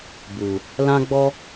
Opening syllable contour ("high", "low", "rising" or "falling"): low